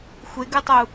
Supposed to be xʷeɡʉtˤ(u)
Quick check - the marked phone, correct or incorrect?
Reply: correct